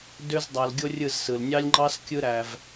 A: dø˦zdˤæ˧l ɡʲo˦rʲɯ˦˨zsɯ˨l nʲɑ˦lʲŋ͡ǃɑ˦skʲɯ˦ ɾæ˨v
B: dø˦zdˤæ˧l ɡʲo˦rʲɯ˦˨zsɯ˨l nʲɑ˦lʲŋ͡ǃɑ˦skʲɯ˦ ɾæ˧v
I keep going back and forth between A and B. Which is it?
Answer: B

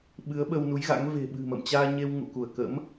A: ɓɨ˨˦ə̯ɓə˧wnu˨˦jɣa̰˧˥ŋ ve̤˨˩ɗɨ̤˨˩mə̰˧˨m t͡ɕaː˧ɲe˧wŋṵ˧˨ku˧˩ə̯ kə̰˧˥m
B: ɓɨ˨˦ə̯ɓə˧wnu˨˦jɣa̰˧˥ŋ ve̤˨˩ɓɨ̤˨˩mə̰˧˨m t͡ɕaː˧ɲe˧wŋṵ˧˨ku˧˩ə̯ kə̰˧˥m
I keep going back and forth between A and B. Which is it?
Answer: B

